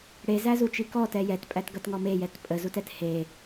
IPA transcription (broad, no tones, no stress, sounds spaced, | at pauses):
ɽ e z æ z u t͡ʃ i k ɔ t ɛ j ɛ t pʼ æ t ɡ ʌ t ŋ ɔ m e j ɛ t pʼ ə z u t ɛ t h e